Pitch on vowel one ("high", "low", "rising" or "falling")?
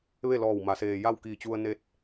falling